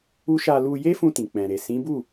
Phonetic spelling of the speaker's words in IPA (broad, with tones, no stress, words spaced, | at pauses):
u˦ ʃa˧ lu˧je˦fũ˧ tĩ˨k͡pɛ̃˨ɾe˨ sĩ˨˦bu˦˨